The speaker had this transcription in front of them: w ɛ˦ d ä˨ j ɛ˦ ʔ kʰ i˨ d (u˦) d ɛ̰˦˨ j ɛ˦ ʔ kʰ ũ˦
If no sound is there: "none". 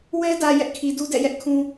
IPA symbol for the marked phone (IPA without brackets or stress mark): u˦